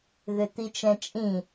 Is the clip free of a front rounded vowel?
no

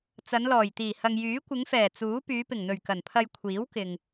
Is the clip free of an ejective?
yes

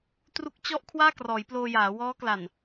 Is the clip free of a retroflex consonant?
yes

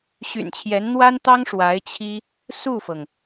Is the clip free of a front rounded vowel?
no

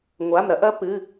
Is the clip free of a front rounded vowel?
yes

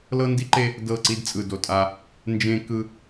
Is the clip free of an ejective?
no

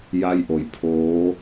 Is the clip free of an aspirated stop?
no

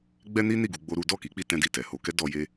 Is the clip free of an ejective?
yes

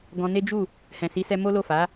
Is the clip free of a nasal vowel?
no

